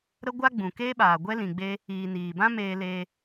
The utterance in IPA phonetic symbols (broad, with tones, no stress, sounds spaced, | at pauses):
ɾ ə˦ ɡʷ a˦ ɡ͡b ũ˨ k eː˦ ɓ aː˨ ɡʷ ɛ˦ l ĩ˨ ɡ͡b e˦ | iː˨ n iː˨ b ã˦ m eː˧ l eː˧